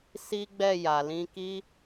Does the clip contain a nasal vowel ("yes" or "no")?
yes